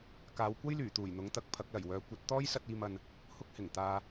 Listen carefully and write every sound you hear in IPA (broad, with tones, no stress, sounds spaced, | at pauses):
k aː˨˧ w kʷ ɐ˥ j l yː˨˩ t̪ uː˨˩ j n̪ ʊ˨˥ ŋ t̪ ɐ˨˥ k̚ pʰ ɐ˨˥ k̚ l ɐ˨˩ j w œː˨˥ kʷ ɐ˨˥ t̚ t̪ ɔː˥ j s ɐ˧ t̚ iː˨ m ɐ˨ n | h ʊ˧ k̚ h ɪ˨˩ ŋ t̪ aː˨